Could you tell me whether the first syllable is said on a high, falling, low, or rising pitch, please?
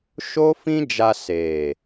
high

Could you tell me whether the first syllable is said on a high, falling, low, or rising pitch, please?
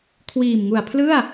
low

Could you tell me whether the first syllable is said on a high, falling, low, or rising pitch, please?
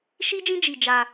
high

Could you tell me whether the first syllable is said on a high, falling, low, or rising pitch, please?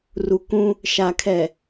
low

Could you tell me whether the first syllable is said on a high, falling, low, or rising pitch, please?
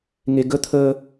low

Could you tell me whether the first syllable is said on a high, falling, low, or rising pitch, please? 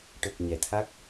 low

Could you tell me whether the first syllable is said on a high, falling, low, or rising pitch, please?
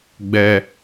high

